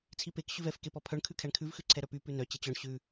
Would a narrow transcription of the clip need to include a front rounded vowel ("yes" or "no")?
yes